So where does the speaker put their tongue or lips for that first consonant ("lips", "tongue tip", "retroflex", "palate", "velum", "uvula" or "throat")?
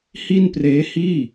throat